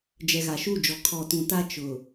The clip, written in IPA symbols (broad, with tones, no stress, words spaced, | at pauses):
d͡ʒɛ˨ɣa˨ʃu˦˨d͡ʒɔ˨ kʰɔ˨tũ˨ta˦ t͡ʃʊ˨